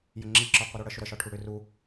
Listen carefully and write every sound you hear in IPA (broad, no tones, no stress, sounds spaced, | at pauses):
j ə ŋ͡ǁ i ǁ ɒ qʷ i ɾ u ɽ ə ʃ ʏ ɾ ə ʃ ɒ ʈʰ u ɽ ʏ r u